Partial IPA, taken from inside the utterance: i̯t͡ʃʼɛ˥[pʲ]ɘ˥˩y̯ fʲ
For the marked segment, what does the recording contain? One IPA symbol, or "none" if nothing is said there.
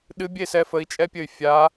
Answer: pʲ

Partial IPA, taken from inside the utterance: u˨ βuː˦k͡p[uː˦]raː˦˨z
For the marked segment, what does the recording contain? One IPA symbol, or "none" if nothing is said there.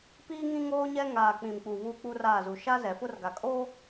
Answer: u˦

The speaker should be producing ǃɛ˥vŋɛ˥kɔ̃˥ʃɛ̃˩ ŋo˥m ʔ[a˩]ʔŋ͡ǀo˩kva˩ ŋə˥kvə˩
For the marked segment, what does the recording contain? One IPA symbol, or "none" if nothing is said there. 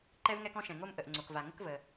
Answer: ə˩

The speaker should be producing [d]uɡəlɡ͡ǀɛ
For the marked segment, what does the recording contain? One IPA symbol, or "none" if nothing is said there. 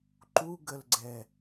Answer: ǃ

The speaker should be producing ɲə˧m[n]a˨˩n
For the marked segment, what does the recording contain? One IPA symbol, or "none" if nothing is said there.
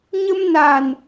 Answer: n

